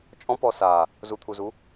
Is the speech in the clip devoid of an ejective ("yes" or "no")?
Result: no